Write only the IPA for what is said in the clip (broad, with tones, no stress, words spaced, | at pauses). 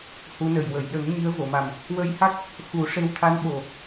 hu˧˥nə˨˩j wə˨˩˨jɗə˨˩˦ŋ ɲi˧˥ə̯vo˨˩˨ma˨˩m | wə˧jha˦˥k̚ | xu˨˩˦ ʂe˧˥wt̪ʰa˧˥n ɓo˨˩